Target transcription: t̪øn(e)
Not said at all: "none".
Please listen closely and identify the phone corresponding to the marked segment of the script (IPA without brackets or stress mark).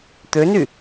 y